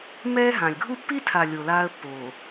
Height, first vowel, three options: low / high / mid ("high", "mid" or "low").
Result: mid